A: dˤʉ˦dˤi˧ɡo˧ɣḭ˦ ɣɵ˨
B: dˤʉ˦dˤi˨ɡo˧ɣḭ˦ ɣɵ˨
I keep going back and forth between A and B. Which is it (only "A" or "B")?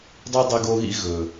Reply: A